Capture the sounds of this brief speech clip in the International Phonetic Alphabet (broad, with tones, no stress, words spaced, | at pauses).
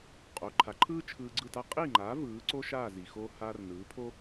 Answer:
qʼo˩˥ǃʰa˩˥ǃʰɯː˥ t͡ʃʰɯː˧ɡ͡ǀɯ˥˩ta˥ qʼiː˥˩ŋ͡ǃaː˩˥ vɯː˩˥ǀo˥ʃaː˥˩zi˩ xo˧ haː˧rnɯː˩˥ pʰo˥